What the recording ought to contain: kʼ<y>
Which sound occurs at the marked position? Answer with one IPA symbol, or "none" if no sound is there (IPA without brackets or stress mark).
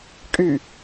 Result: y